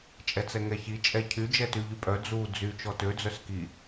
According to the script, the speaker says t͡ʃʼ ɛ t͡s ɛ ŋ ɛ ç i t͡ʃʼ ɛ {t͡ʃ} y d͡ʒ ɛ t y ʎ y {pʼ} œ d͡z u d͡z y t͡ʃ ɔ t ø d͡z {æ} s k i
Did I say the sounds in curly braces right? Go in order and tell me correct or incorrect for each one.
incorrect, correct, incorrect

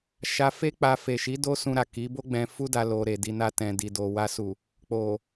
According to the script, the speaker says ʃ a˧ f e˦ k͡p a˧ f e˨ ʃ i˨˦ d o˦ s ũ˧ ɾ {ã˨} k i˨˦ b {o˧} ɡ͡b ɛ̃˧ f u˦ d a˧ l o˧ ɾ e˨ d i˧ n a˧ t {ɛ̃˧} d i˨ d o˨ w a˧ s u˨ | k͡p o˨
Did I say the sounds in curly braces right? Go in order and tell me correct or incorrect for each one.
incorrect, incorrect, incorrect

